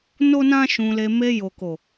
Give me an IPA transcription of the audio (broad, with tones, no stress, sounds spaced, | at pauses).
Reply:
n o˦ n ã˦ ʃ ũ˧ l e˧ m e˧ j o˨ k o˨